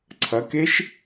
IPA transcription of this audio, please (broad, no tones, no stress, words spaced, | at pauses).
ǀʰɐkeʃ